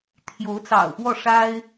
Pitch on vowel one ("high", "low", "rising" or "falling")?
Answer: rising